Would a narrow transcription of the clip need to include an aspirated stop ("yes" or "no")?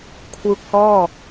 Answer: yes